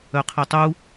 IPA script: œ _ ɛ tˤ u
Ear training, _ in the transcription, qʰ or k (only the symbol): qʰ